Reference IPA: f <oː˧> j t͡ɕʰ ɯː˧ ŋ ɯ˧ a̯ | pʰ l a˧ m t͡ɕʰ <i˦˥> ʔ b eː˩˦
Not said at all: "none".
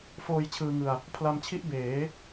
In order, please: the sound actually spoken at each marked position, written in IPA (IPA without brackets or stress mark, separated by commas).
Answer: oː˧, i˦˥